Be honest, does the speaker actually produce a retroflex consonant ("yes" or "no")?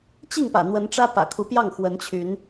yes